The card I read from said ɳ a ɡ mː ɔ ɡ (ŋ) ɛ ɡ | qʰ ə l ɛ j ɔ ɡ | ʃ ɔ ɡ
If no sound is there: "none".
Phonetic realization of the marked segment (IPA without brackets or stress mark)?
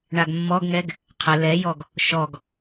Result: ŋ